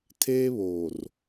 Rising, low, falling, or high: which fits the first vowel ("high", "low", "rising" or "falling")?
high